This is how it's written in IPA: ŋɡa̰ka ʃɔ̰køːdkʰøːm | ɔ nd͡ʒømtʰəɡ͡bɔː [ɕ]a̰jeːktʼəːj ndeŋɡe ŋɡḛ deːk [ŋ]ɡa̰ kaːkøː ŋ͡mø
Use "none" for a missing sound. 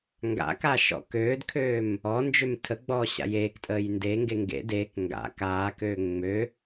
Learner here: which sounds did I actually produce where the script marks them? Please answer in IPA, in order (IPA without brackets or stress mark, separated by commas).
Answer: ɕ, ŋ